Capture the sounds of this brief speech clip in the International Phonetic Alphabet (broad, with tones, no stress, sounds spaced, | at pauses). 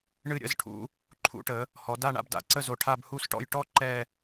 ɳ ɨ˧˩ ɾʲ ə̰˥˧ z ʈʰ ṵ˩˧ | ǃʰ ṵ˩˧ ʈ ə˩˧ | h ɔ˩˧ d a˥˧ ɳ a̰˧ b d a̰˩˧ ǀ ə˥˧ z o˧ ʈʰ a˥˧ b h u˥˧ s ʈ ɔ̰˥˧ j ʈ ɔ˥ ǃ ɛ˥˧